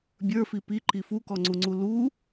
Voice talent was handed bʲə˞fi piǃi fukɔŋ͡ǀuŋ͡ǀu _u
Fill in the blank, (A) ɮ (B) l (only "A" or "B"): B